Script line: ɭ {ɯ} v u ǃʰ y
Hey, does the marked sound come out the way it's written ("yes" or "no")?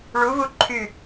no